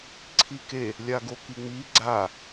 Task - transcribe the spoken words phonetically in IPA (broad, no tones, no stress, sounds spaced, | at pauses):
ǀʰ i k e | lʲ a ɡ o k i ŋ͡m i ɡ͡ǀ a